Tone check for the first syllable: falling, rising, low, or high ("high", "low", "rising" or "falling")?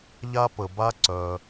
high